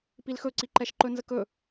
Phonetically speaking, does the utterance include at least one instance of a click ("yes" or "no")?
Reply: yes